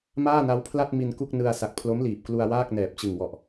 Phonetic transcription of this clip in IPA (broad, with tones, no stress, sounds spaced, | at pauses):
m aː˥˩ n a˦˥ w pʰ l a˥˩ t̚ m i˧ n k u˥˩ k̚ n ɯ˧ a̯ s a˨˩ k̚ pʰ l o˦˥ m l iː˨˩ p̚ k l u˧ a̯ w aː˥˩ k̚ n ɛː˨˩ p̚ t͡ɕ ɯ˨˩ ŋ w ɔ˨˩ ʔ